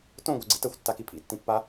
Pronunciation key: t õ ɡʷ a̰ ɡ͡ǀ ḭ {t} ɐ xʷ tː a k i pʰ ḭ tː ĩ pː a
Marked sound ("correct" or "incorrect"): correct